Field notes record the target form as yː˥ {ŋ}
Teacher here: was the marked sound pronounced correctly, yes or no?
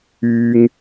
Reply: yes